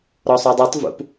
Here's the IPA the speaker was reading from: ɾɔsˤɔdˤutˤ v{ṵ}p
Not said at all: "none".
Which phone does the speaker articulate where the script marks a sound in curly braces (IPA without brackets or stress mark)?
ṵ